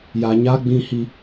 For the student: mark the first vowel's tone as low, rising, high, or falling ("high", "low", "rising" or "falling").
low